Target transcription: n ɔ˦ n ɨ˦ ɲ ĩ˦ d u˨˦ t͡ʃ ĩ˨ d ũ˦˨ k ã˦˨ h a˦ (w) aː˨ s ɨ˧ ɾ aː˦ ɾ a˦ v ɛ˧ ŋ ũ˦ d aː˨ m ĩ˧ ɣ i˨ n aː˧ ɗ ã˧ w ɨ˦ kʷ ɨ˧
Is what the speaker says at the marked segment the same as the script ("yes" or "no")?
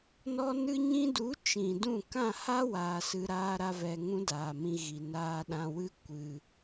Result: yes